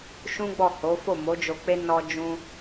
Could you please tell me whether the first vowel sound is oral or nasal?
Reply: nasal